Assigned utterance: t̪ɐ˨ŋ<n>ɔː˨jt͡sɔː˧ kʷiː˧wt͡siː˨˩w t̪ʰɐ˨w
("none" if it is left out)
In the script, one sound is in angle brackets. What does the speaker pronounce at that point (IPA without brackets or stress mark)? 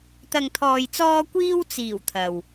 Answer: t̪ʰ